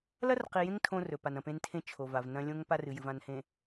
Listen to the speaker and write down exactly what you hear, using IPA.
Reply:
l ɐ˦ r q i˨ j ẽ˦ ŋ tʰ õ˦ r ɵ˨ p a˨ n ɐ̃˨ p ẽ˦ n tʰ ẽ˦ t͡ʃʰ o˨ v a˨ v n ɐ̃˦ lʲ õ˦ ŋ p a˦ r ɨ˨ j ɨ˨ v ã˨ n h ẽ˨

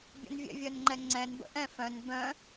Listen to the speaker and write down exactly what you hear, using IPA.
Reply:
bʲ ə̰ n vʲ ɛ̰ vʲ œ n ŋ͡ǃ ɛ ŋ͡ǀ ɛ̃ n b ə̰ ʔ ɛ̃ f œ̃ n b œ̃

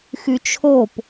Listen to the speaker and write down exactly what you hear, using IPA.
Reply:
x y t͡ʃʰ o p

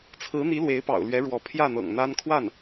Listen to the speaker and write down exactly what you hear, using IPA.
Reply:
t͡sʰ ɹ̩˧˥ n̪ i˧˥ l w e˧˥ ɪ̯ p ɑ̰˨˩ ʊ̯ l ɥ ɛ˧˥ ɻ w ɔ˧˥ pʰ j ä˥˩ n̪ ɤ̰˨˩ ŋ n̪ a˥ n kʰ w a˥˩ n

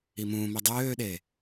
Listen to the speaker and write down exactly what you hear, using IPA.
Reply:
i m ũː m i dˤ øː ɗ e

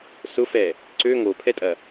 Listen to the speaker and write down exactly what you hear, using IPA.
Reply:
s ʊ f ɛ | ǀ ø ŋ o pʰ ɛ tʼ ɐ

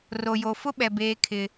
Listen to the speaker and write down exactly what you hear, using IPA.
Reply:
r o˨ j o˨ f ʊ˦ ɓ ɛ˨ b eː˦ kʰ ɪ˦

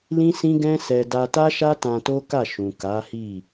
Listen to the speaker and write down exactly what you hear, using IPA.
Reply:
l ĩ˦ s ĩ˦ ɡ ɛ̃˦ s ɛ˧ d a˧ t a˦ ʃ a˦ t ã˧ t o˦ k a˦˨ ʃ ũ˨ k a˨˦ h i˦˨

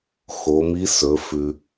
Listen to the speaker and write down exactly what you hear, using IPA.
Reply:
x o˩˧ m i˧˥ s ɵ˩˧ f ʉ˩

